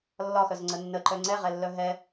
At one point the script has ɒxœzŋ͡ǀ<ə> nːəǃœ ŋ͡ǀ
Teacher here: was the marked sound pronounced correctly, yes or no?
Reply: yes